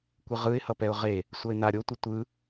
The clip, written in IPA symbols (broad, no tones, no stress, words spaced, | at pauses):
kʷɯʁɯɪ̯hʌpɛʊ̯ ʁe | sʷʌɪ̯na ɾʲotʷi tʷɯ